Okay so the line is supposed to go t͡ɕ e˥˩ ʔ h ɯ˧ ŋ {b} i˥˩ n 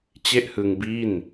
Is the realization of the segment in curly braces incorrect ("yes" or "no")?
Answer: no